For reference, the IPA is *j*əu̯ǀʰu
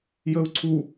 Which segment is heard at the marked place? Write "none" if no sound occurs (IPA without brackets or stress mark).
j